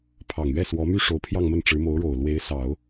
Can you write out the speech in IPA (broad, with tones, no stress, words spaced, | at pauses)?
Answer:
pʰɑ˨˩ŋɥɛ˥˩ swɔ˧˥my˥ ʂo˧˥ʊ̯pʰjɑ˥˧ŋmə˥˩n ʈ͡ʂɻ̩˧˥mo˧˥ʊ̯ɻo˨˩ʊ̯lwe˧˥ɪ̯ sɑ˨˩˦ʊ̯